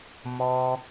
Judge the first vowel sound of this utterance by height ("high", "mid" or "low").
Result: mid